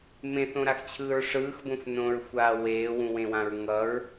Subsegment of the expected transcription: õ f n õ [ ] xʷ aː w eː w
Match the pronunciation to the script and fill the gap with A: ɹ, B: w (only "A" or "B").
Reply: A